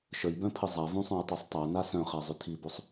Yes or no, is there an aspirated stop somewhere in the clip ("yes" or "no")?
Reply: yes